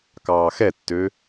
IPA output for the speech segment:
k ɑː x ɛ tː ø

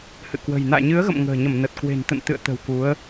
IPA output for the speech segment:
h ɨ̰˧˨ k w ə̤˨˩ j n a̰ː˧˨ ɲ ɨ˨˦ ə̯ ɣ ə̰˧˨ m ŋ ə̤ː˨˩ ɲ ə˧˩ m n ə˨˩ t̚ k w e̤˨˩ n t̪ ə̰˧˨ n t̪ ɨ̰˧˨ ə̯ t̪ ə̤˨˩ w k u˨˦ ə̯

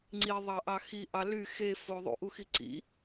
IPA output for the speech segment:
ŋ͡ǀ i ðˤ ɑ ʔ ɑ x i ʔ ɑ l y x e f o ðˤ ṵ ʔ u x i ǀ ḭ

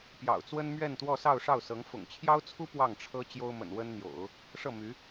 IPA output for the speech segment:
p j ɑ̰˨˩ ʊ̯ t͡s w ə˥ n m ɥ ɛ˥˧ n t̪ w ɔ˥˧ s ɑ˥˧ ʊ̯ ʂ ɑ˥˩ ʊ̯ s ɤ˧˥ ŋ f ʊ̰˨˩ ŋ t͡ɕʰ j ɑ˥ ʊ̯ t͡sʰ u˥ p w ɑ˥˩ ŋ ʈ͡ʂʰ ɤ˥ t͡ɕ j o˥ ʊ̯ m ə̰˨˩ n w ə˥ n n̪ j o̰˨˩˦ ʊ̯ | ʂ ɤ˥˩ m y˧˥

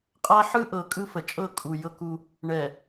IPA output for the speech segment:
qʼ a˦ ħ ɯ˦ ʔ ɤ˨ kʼ ɯ˦ f ə˨ t͡ʃʼ ɤ˦˨ kʼ u˨ j ɤ˦ k u˦ | ɳ ɛ˨

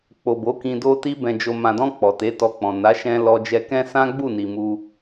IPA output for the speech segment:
k͡p o˨ b o˨˦ k ĩ˧ d o˧ t i˧ b ɛ̃˨ d͡ʒ o˨ m ã˨ d ɔ̃˧ k͡p ɔ˨ t e˨˦ t ɔ˧ k͡p ɔ̃˨ n a˨˦ ʃ ɛ̃˧ l ɔ˧ d͡ʒ ɛ˧ k ɛ̃˦ s ã˦ ɡ͡b u˦˨ n i˨ m u˧

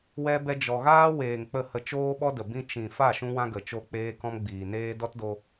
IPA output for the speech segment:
w ɛ˦ b ɛ˦ d͡ʒ ɔ˧ ɣ aː˦ w eː˨ ŋ k͡p ə˦˨ h ə˧ t͡ʃ oː˦ ɓ ɔ˦ d ə˨ b ĩ˧ t͡ʃ ĩ˨ f a˦˨ ʃ ũ˦ w ã˦ ɡ ə˨ t͡ʃ o˧ k͡p eː˦ k ɔ̃˦ m ɡ͡b iː˨ n eː˦ d ɔ˦ t d o˧

